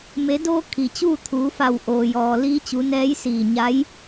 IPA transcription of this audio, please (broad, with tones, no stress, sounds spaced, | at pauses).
m e˩˧ d oː˧ kʰ i˩ t͡ɕ uː˥˨ t̪ʰ uː˩˧ f a˧˩ w ʔ oː˩ j ɔː˩ l iː˧˥ t͡ɕ u˩˧ n ɛː˧˥ j s iː˧˩ ɲ a˧˥ j